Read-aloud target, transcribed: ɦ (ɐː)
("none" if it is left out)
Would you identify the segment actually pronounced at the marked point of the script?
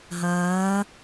ɐː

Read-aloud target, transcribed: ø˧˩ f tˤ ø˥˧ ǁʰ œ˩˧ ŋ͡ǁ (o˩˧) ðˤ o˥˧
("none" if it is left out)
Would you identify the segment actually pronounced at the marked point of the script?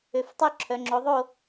o˩˧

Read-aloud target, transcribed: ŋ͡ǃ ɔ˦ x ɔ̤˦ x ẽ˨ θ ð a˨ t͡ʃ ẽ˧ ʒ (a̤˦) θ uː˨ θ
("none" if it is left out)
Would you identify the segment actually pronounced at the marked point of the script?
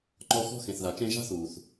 a̤˦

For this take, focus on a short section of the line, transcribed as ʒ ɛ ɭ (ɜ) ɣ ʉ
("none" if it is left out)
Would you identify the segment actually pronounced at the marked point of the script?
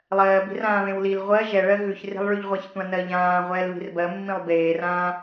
ɜ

